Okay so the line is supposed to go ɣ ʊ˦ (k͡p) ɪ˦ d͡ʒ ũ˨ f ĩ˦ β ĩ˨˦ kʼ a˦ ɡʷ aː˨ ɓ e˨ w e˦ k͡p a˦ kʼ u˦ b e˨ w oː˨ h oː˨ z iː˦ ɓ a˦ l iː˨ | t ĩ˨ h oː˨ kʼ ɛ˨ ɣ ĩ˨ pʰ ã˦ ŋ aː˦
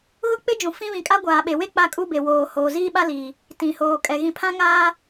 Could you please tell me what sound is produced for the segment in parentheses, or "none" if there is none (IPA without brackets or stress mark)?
k͡p